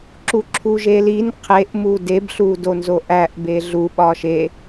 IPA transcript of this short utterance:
ǁuǁʰuʒelin qʰeʔ mudebɬu donzoʔæʔ beɮu ɓɒʃe

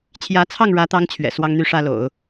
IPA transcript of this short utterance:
t͡ɕʰjä˧˥t͡sʰɑ˥˩ŋɻä˧˥t̪ɑ˧˥ŋ t͡ɕʰɥɛ̰˨˩swɑ˥ŋn̪y˥ʂä˥ lo̰˨˩˦ʊ̯

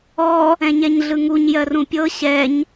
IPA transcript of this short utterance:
ɔ | ɛ̃ɲɛɲɮɯŋuɲ jɜrũpʲɤ ɕɛɲ

